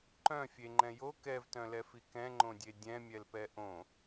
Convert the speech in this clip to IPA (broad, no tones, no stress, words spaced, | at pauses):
ǃœ̃ fʲeŋ͡ǃɛ̃ jo kɛvtœ̃lɛfi kɛ̃ŋ͡ǃõdʲe dʲɛ̃mʲɛlpɛ ʔõ